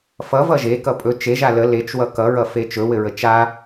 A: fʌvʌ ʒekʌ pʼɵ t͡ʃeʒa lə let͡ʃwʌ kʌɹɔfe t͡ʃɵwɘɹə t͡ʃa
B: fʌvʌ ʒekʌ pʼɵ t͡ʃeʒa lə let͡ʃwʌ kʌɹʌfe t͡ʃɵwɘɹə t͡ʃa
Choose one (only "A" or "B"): B